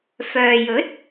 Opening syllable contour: low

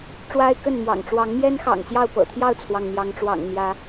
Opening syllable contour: high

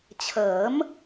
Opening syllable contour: rising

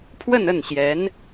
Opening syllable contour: falling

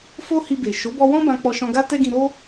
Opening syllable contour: high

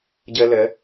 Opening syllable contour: high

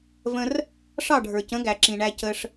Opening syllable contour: high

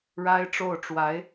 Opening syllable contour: high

